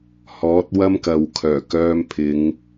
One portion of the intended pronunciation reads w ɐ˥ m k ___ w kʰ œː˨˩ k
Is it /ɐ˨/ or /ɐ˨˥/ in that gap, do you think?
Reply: ɐ˨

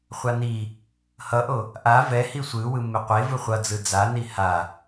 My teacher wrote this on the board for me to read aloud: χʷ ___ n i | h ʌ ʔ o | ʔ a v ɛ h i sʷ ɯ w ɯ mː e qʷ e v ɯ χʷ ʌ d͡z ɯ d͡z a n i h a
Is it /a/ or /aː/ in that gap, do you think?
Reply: a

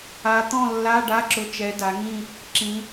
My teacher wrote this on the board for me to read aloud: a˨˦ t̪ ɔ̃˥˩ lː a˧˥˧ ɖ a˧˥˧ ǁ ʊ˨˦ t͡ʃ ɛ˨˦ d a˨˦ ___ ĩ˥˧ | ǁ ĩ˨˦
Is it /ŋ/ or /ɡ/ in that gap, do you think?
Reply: ŋ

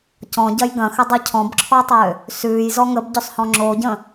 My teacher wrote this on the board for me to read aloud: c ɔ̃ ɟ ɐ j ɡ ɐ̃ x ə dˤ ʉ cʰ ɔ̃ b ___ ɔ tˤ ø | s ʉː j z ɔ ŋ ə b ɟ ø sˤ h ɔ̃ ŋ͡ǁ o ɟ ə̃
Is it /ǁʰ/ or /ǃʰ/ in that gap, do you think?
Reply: ǁʰ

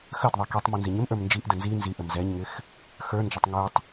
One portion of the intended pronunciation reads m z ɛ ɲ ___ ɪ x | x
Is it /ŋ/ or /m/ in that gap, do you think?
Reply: ŋ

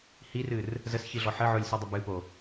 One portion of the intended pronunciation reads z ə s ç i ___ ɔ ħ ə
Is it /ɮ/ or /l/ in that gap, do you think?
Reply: ɮ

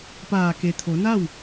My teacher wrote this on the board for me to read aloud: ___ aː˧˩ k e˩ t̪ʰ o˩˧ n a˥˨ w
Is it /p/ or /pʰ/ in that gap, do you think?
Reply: p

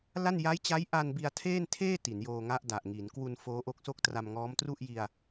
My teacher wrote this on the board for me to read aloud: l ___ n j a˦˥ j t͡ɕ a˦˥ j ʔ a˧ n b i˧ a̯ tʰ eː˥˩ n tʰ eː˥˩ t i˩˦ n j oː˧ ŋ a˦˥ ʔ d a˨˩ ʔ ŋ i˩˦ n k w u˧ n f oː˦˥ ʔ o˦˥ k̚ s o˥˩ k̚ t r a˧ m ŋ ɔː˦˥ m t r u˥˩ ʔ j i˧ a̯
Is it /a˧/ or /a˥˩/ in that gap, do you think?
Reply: a˥˩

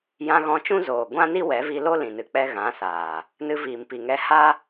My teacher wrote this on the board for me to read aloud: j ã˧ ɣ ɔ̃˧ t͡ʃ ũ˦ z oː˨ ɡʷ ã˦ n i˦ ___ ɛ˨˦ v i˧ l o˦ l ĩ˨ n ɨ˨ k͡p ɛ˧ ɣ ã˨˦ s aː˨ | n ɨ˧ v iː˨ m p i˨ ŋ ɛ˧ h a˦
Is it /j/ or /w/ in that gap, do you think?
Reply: w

